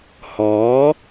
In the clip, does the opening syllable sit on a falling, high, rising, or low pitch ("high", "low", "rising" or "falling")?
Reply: rising